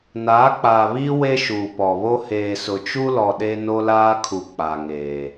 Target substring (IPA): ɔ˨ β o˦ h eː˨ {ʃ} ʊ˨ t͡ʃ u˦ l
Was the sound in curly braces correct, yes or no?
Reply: no